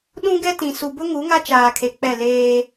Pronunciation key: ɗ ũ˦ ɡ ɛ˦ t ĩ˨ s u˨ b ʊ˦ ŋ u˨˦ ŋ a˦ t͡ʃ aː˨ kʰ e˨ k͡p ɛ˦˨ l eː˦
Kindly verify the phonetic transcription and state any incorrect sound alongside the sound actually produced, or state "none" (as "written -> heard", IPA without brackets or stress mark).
none